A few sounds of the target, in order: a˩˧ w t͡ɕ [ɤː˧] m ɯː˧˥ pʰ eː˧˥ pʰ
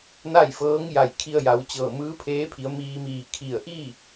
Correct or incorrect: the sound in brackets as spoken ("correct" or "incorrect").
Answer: incorrect